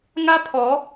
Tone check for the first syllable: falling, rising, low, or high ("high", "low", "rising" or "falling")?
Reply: high